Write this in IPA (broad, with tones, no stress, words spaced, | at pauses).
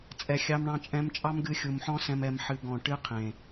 t͡sʼɛ˨xʲɑ˧mɳɑ̃˧ t͡ʃʼɛ̃˧m t͡ʃʼɑ˦mɡɨ˧xʲu˨mħɔ̃˦ sɛ̃˧mɛ˨˦m ħɨ˧ ɡɔ̃˨ʈɨ˦qʰẽ˨